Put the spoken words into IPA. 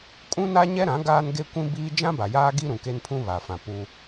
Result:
kʼ ũ˦ n a˦ ɲ ɛ˦ ɾ ã˨˦ ɡ aː˦ n ɡ e˦ kʷ ĩ˦ b iː˦ d͡ʒ ã˦ b a˨ j aː˦ ɡ i˦ ɾ ũ˨ k e˦ n pʰ ũ˦ β aː˨ f ã˨ p u˦

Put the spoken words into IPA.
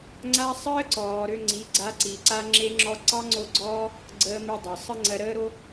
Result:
ŋ͡ǀ a˦ sˤ əː˦ ǀ ɔː˨ ɾ ø˧ ŋ͡ǀ i˨˦ ɡ͡ǀ a˧ ǀ i˨ ǀ a˧ ŋ͡ǁ e˧ ŋ͡ǁ ɔ˧ ǀ ɑ˦ ŋ͡ǀ o˦˨ ɡ͡ǀ ɔː˦ | ɡ͡ǀ əː˧ m i˧ dˤ ɑ˨ sˤ ə˦ ŋ͡ǀ ɜ˧ ɾ əː˦ ɾ o˦

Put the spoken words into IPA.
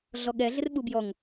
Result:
ɮ ɔ ɠ ɛ ɮ ɪ r ɓ u b j ɔ ŋ

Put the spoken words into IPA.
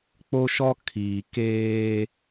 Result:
k͡p o˦ ʃ ɔ˦ kʰ iː˨ k eː˦

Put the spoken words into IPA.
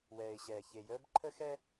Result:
w ɛː˨ ɪ̯ ɕ ɛː˨ ç e˨ j əː˦ b ǃʰ ə˦ x ɛ˦

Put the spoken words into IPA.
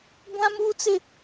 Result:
ɡʷ ã˦ m uː˦ t͡s ɪ˦

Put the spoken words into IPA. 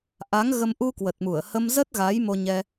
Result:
ʔ a˨˦ ŋ ɣ ə˧ m ʔ u˧ k w ə˨˩ t̚ m u˧˩ ə̯ h ə˧ m z ə˦˥ t̚ ɣ a˨˦ j m o˧ ɲ ɛ˧

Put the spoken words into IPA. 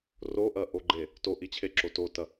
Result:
r o ʔ ɐ ʔ o ɡ͡ǃ e | t o ʔ i t͡ɕʰ e ǁ o t o t ɐ

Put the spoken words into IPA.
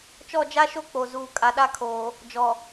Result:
t͡ʃ ɔ˦˨ d͡ʒ a˦ ʃ o˦ k͡p o˨ z uː˨ kʼ a˨ ɗ a˦ kʰ oː˨ | d͡ʒ ɔ˨

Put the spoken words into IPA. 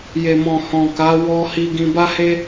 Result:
j e˨ m ɔ̃˨ h ɔ̃˨ k a˨˦ w ɔ˦ h i˧ ɡ ĩ˧ b a˦ h e˦

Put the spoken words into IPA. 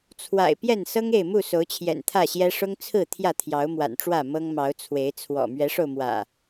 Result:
t͡sʰ w a̰˨˩ ɪ̯ p j ɛ˥˨ n s ɤ˦ ŋ e˥˨ ɪ̯ m u˥˨ s o˨˦ ʊ̯ t͡ɕʰ j ɛ̰˨˩ n t̪ʰ ä˥˨ ɕ j ɛ˦ ʂ ʊ˦ ŋ t͡sʰ ɹ̩˥˨ t̪ʰ j ä˥˨ t̪ʰ j ɑ˨˦ ʊ̯ m w a̰˨˩ n ʈ͡ʂ w ä˥˨ m ɤ˦ ŋ m ɑ˨˦ ʊ̯ t͡sʰ w e˨˦ ɪ̯ t͡sʰ w ɔ̰˨˩ m ɥ ɛ˨˦ ʂ o˧ ʊ̯ m w ä̰˨˩

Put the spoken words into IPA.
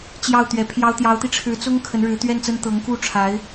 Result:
t͡ɕ j ɑ˥˩ ʊ̯ t̪ ɥ ɛ˧˥ pʰ j ɑ˥ ʊ̯ t̪ j ɑ˧˥ ʊ̯ t̪ i˧ ʈ͡ʂʰ ɻ̩˧˥ t͡s ʊ˥ ŋ kʰ ə˧˥ n ɻ ɻ̩˧˥ t̪ ɥ ɛ˥˩ n t͡s ə˥ n t̪ ɤ˧˥ ŋ k u˥˩ ʈ͡ʂʰ a˧˥ ɪ̯

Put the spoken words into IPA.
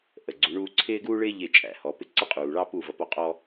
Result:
ʔ ə˨ ɡ͡ǀ u˨˦ ɳ uː˦ ǀʰ ɪː˦ ɡ uː˦ ɭ ɪː˦ ʎ ɪ˦˨ t͡ʃʼ æ̰˧ h ɔ˨˦ p ɪ˦ ǀ ɪ˦ qʼ uː˨ ɭ ɑ˦ p u˦˨ v ʌ˧ p ɔ˦˨ qʼ ɔ˦

